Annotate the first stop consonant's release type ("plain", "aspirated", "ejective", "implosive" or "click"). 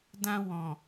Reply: plain